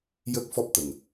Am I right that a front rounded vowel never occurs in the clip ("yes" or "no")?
yes